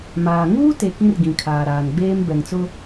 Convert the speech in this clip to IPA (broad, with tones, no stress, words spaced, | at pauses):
maː˨ ŋuː˦te˨ kĩ˦rɡĩ˨kʰaː˨ɾaː˨n ɡ͡beː˦m bɛ˨ŋt͡sʊ˦